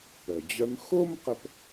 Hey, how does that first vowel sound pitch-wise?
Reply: low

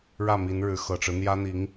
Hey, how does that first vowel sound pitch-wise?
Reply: falling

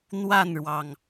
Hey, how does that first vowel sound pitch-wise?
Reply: falling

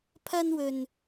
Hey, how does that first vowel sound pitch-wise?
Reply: high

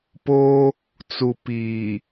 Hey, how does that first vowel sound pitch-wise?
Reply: high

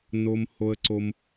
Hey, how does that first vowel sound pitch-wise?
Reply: high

